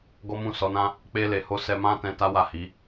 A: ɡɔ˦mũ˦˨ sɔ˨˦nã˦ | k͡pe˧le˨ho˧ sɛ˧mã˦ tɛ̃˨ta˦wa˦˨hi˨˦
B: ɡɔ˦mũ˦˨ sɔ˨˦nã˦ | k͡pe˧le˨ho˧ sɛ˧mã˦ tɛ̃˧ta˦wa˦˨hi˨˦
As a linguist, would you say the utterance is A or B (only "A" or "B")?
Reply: B